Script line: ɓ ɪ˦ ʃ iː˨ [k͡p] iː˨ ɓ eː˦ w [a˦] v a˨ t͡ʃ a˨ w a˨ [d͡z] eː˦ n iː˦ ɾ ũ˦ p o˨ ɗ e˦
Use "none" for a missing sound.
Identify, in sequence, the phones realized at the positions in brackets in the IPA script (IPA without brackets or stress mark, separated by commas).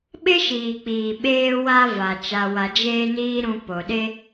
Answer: k͡p, a˦, d͡ʒ